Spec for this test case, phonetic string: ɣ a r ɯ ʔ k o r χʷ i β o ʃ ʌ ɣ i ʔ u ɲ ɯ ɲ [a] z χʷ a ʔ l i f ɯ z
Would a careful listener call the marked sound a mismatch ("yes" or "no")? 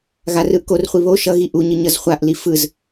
yes